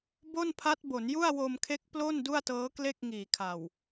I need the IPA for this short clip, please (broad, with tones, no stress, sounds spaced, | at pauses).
b o˥˩ n pʰ a˦˥ t̚ b o˩˦ n j u˥˩ a̯ w o˧ m kʰ e˦˥ k̚ p l o˥˩ n d u˥˩ a̯ t ɤː˦˥ k l e˥˩ k̚ ŋ iː˨˩ kʰ a˨˩ w